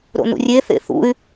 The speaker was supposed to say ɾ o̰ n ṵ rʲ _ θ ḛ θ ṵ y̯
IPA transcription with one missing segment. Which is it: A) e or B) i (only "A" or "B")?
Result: A